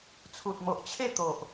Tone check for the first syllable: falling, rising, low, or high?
low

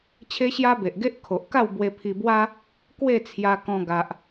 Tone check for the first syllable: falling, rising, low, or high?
high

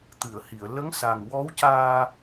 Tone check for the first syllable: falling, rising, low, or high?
low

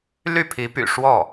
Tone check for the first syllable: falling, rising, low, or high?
falling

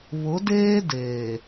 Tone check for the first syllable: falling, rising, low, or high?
rising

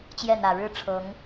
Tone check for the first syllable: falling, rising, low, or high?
falling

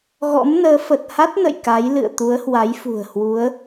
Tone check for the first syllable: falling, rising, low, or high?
rising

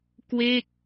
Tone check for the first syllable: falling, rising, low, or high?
falling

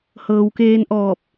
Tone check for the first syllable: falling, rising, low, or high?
low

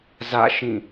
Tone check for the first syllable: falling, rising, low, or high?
falling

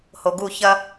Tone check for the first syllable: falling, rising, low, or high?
low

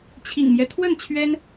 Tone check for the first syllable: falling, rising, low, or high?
low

